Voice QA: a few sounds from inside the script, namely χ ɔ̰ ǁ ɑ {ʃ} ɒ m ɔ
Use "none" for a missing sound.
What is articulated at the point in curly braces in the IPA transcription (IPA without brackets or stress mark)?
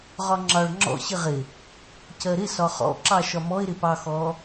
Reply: ʃ